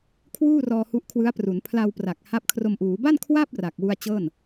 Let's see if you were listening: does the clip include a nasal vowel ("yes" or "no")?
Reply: no